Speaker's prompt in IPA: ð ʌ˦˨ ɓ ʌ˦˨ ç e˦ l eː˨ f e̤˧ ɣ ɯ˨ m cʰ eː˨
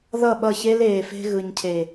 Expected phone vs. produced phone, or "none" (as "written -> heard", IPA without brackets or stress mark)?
m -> ɲ